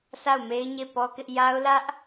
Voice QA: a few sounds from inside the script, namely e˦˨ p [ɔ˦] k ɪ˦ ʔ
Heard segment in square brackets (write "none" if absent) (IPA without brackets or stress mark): ɔ˦